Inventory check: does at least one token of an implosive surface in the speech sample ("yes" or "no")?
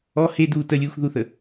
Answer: no